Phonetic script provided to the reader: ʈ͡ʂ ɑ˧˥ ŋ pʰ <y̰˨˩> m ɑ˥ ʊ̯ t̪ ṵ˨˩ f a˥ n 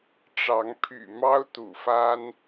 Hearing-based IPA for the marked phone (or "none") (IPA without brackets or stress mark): y̰˨˩